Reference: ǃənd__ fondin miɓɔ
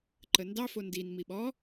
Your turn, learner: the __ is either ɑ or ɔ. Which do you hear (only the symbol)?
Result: ɑ